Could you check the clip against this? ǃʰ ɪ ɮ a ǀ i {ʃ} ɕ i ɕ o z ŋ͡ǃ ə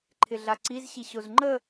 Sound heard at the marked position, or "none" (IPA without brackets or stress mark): z